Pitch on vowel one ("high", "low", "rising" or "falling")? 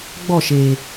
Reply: falling